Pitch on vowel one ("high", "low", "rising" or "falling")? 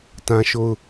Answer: high